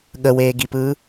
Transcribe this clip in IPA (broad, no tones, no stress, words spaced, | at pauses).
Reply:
ɠəweːɡipɯː